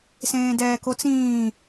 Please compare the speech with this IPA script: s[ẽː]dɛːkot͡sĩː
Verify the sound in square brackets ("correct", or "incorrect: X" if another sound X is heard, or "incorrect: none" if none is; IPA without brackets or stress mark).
correct